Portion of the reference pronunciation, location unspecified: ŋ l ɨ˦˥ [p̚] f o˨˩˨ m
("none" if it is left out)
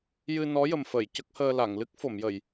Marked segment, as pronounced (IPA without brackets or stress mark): k̚